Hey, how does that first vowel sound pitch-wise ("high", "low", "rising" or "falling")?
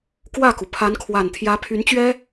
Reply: falling